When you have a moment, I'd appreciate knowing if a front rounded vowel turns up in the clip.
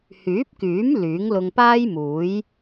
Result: yes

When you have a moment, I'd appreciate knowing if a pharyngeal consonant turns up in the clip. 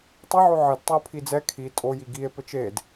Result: yes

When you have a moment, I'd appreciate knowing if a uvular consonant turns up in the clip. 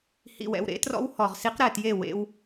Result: yes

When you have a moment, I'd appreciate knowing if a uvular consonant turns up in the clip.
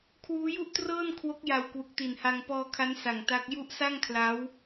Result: no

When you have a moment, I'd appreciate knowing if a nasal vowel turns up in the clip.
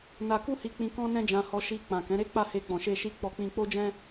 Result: yes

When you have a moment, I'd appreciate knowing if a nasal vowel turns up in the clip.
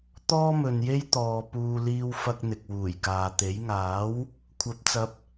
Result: no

